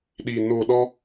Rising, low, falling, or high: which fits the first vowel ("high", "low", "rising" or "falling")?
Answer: low